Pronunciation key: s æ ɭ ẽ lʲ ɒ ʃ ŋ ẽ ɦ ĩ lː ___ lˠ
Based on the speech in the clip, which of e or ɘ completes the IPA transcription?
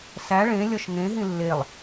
e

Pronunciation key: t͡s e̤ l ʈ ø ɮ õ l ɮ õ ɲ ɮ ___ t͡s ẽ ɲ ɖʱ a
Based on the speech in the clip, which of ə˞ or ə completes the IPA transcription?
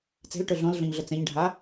ə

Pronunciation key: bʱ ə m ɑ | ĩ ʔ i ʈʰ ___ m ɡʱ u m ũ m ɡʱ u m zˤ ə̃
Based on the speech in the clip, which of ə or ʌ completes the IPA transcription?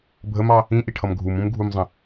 ʌ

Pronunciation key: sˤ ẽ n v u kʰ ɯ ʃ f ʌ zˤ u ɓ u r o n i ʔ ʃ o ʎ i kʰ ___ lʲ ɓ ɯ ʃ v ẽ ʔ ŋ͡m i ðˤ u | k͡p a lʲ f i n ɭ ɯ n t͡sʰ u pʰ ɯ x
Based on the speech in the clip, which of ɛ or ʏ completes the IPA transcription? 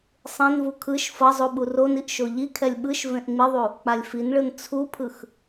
ɛ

